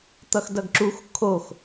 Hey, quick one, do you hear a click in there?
yes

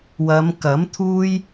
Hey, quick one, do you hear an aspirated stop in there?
yes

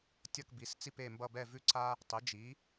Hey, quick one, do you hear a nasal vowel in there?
no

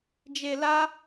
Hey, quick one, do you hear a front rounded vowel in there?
no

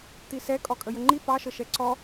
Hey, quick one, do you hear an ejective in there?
yes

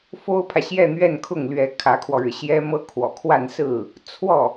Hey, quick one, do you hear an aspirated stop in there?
yes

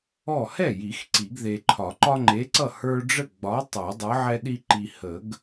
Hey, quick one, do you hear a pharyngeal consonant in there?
yes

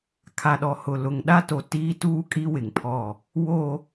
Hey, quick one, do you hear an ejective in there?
yes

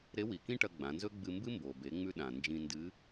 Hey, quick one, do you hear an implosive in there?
yes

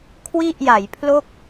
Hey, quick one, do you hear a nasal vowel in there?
no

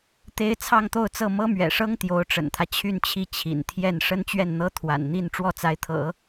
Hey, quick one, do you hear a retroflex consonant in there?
yes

